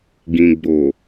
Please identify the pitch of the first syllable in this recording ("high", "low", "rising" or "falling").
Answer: low